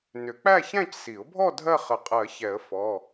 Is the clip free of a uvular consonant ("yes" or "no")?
no